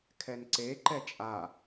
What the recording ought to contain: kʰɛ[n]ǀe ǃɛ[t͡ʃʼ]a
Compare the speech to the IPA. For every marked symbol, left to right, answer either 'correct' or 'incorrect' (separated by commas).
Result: correct, correct